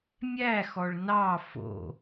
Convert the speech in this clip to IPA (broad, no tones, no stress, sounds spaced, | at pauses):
mʲ æ x ɔ ɭ n ɑ f o̰